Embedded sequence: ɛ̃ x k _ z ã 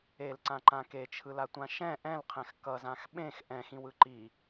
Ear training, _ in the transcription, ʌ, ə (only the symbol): ʌ